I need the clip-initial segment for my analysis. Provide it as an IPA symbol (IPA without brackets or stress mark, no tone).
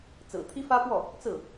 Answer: t͡s